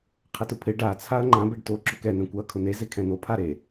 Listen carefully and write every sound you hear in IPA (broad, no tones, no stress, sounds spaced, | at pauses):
qʰ ɛ t ʊ pʰ ɪ ɖ a t͡sʰ a ɐ̯ ŋ͡ǃ ã b ɛ ɖ t o ǁ ʊ k ɛ n̪ ɛ̃ kʷ a ɐ̯ kʰ ʊ n̪ e z e kʰ ɛ̃ n̪ o pʰ a ɾ e